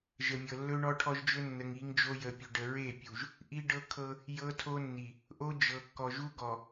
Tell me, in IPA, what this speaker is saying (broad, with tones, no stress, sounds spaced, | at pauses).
ʒ ə˨ mʲ ɤ˨ lː ɵ˦ ɳ ɔ˦ ʈʰ ɔ˦ ʒ d͡ʒ ɵ˦ nː ə˨ ŋ i˨˦ ŋ d͡ʒ o˦ j ə˨ pʲ ɵ˨ ɖ ə˨ ɹ e˦˨ pʲ u˨ ʒ | ʔ i˦ ɖ ɤ˦ kʰ ɤ˦ | j ɤ˦ tʰ o˦ nː i˨ | ʔ o˦ d͡ʒ ɤ˨ kː ɔ˨ ʒ u˦ ɡ ɔ˨